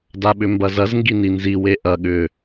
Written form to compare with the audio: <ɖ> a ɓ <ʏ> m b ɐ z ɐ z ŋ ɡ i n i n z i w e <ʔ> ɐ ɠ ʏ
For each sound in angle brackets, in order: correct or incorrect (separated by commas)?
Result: incorrect, correct, correct